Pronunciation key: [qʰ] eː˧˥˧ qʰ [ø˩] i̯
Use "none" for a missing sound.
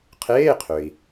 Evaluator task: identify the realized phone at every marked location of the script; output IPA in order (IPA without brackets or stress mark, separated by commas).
qʰ, ø˩